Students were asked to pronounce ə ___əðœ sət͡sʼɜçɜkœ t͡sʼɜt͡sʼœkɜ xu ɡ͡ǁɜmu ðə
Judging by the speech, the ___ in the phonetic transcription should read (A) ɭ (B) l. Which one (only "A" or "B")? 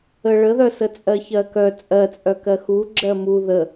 A